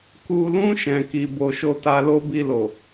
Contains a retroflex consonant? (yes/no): no